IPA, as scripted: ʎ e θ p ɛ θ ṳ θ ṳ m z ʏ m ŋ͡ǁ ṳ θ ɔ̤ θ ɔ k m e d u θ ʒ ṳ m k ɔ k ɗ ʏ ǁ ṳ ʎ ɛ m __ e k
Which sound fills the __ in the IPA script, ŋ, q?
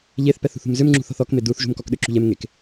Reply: ŋ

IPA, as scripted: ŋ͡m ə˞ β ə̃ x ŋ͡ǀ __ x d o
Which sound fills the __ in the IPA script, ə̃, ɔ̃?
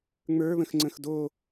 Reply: ə̃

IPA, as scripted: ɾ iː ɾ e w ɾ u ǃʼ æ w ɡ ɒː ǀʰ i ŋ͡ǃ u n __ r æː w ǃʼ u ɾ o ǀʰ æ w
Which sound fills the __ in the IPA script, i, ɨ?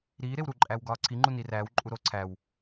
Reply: i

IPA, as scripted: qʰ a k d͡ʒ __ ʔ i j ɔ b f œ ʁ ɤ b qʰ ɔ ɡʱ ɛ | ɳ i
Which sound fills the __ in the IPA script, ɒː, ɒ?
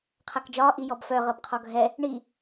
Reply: ɒː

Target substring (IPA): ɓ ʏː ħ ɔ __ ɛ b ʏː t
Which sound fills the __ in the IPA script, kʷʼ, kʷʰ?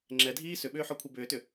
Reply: kʷʰ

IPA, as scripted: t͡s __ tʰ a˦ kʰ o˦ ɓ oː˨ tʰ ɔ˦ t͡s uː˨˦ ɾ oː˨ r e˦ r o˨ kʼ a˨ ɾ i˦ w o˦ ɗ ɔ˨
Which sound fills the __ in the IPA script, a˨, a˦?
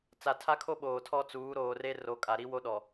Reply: a˨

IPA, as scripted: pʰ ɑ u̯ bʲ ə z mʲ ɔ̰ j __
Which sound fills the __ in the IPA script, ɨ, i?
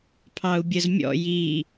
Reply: i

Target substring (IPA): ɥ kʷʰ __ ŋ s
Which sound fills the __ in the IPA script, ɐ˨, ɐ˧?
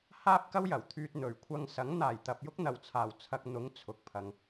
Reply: ɐ˧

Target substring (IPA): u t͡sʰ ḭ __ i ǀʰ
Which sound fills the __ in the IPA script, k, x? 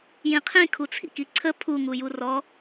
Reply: k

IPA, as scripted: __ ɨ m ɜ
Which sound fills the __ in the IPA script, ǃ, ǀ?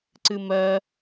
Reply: ǀ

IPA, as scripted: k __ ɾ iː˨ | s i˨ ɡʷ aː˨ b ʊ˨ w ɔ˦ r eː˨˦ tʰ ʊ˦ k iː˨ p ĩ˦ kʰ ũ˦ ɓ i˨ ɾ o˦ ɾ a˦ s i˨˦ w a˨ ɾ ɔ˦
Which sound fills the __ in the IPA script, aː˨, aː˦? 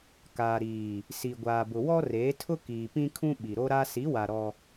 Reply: aː˨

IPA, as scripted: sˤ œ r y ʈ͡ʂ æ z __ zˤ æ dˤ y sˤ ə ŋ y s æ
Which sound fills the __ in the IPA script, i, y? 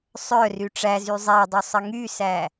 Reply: y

